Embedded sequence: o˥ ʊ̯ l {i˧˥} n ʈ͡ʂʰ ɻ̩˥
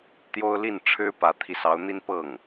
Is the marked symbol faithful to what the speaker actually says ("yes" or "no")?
no